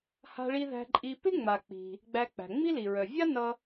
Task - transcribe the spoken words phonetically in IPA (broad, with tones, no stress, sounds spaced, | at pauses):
h a̤˧ ɭ i˧ ð æ̤˧ ǃʼ i˧ p ɪ˥ ŋ͡m a˩ k͡p i̤˩ | ɡ͡b æ˧ k͡p æ̤˩ ŋ͡m i˥ l i˩ ɹ œ˩ vʲ a˥ n ʌ˧